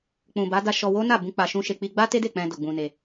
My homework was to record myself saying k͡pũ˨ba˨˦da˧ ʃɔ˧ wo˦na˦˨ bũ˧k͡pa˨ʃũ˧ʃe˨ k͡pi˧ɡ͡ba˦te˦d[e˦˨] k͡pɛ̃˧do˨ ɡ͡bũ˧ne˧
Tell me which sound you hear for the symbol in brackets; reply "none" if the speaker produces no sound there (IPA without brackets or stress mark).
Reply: e˦˨